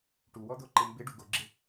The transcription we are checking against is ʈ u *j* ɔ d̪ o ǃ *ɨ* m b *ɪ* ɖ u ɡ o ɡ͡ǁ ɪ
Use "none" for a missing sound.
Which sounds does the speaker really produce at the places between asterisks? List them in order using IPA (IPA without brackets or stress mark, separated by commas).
w, ɪ, ɪ